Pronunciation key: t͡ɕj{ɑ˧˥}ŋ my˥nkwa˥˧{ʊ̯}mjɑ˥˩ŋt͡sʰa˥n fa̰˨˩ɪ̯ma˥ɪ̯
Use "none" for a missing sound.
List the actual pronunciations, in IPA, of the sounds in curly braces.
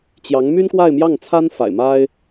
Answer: ɑ˧˥, ɪ̯

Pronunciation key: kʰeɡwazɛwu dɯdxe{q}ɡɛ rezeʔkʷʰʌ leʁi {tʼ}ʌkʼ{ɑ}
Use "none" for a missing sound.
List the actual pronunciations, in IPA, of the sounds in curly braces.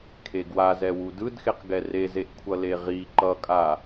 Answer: q, ǃ, a

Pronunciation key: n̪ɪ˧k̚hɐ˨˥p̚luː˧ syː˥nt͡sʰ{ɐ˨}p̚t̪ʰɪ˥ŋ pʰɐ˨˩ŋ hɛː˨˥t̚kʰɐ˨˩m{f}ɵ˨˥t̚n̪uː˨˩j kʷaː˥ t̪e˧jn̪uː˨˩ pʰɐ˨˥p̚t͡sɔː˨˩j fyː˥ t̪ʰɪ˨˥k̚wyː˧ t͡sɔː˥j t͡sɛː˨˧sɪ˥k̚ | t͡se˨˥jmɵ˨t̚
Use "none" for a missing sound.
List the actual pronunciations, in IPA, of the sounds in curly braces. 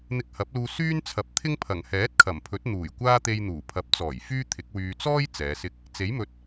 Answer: ɐ˨, pʰ

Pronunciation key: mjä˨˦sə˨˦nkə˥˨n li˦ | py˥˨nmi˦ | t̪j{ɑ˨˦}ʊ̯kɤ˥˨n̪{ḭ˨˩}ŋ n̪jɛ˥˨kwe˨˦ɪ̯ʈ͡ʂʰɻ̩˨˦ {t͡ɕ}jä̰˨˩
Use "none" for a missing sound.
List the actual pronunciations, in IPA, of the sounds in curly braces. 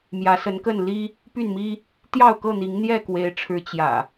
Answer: ɑ˥˨, i˨˦, t͡ɕ

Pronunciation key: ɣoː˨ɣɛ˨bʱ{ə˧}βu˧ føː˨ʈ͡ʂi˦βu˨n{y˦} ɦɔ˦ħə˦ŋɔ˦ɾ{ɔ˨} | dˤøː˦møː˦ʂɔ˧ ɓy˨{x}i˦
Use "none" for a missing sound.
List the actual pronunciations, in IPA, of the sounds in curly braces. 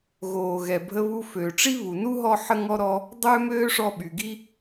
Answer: ə˧, u˦, ɔ˦, ɡ

